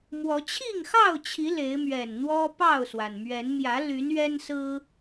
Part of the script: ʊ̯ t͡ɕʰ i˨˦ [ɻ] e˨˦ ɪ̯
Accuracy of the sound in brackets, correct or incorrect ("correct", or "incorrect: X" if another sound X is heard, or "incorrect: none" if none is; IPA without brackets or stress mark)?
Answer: incorrect: l